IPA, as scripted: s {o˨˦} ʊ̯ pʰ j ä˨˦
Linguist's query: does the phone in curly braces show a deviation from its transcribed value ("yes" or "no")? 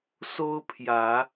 yes